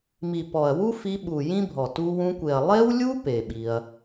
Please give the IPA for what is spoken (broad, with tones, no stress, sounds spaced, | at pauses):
m i˨ p ɔ˨ ɐ̯ w u˦ f i˧ ɓ u˨ j ĩ˦ bʱ ɔ˨ t u˧ w ũ˧ kʷ e˨ ɐ̯ lˠ e˦ w lʲ u˦ p e˨ ɓ i˧ ɐ̯